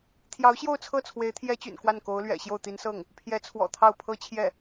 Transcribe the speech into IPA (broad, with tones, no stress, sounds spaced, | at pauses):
t̪ʰ j ɑ˧˥ ʊ̯ ɕ j o˥˧ ʊ̯ t͡sʰ ɤ˥˩ t͡sʰ w e˧˥ ɪ̯ t̪ʰ j ɛ˥ t͡ɕ y̰˨˩ n k w a˥˩ n k o˧˥ ʊ̯ l ɥ ɛ̰˨˩ ɕ j o˥˩ ʊ̯ t̪ i˧˥ n s ɤ˥˩ ŋ | pʰ j ɛ˧˥ t͡sʰ w ɔ̰˨˩ t̪ʰ ɑ˥˩ ʊ̯ pʰ ɤ˥ t͡ɕʰ j ɛ˥˩